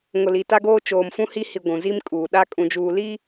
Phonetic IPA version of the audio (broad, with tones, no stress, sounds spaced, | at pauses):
ŋ ʊ˨ l i˨ t a˦ ɡ oː˦ t͡ʃ oː˨ m f ũ˦ h i˦ h i˨ ɡʷ ũ˨ z i˦ m kʼ uː˨ ɗ a˦ kʼ ũ˨ d͡ʒ uː˨ l i˦